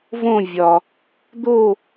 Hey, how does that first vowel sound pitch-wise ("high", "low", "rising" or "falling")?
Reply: falling